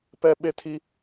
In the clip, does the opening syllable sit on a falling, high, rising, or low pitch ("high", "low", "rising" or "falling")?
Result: high